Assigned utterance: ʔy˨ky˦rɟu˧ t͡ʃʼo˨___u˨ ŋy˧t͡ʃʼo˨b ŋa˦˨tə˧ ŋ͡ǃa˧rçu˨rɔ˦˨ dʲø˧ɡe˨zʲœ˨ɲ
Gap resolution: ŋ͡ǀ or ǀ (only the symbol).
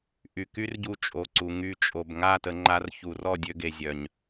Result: ǀ